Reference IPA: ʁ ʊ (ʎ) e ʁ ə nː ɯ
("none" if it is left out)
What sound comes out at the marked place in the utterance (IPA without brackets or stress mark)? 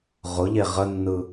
ʎ